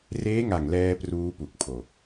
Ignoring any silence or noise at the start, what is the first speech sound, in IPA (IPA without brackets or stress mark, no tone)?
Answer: r